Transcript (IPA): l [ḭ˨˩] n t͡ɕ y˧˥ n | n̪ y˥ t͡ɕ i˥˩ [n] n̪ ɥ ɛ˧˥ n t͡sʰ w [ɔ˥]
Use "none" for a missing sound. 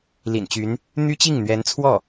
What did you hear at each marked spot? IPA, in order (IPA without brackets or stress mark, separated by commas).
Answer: ḭ˨˩, ŋ, ɔ˥˩